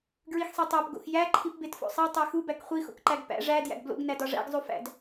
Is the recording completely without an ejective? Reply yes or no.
yes